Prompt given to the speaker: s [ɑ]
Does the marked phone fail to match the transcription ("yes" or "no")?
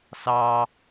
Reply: no